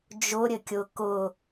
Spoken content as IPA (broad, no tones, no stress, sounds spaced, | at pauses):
d͡ʒ ʊ ɾʲ ɘ kʲ ʊ k ʊ